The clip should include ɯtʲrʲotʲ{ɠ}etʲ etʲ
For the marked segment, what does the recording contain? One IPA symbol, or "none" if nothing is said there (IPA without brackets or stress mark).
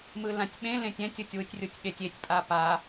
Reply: ɠ